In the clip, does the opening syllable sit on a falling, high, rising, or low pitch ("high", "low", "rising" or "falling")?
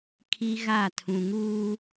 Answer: high